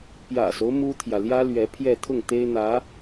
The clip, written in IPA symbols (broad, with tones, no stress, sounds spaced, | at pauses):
p j ä̰˨˩ s o˦ ʊ̯ m u˥ t̪ʰ j ä˨ l j ä˥ l ɥ ɛ˧˥ pʰ j ɛ˥˧ t̪ʰ ʊ˥˩ ŋ t̪ e˥ ɪ̯ n̪ ä˧˥